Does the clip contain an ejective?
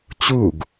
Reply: no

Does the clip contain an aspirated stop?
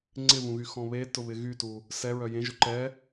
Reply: no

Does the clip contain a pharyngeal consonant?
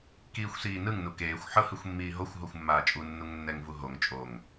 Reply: yes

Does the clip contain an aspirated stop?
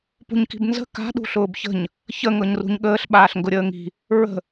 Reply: no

